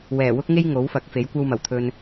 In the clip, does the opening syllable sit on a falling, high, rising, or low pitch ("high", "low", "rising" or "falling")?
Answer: low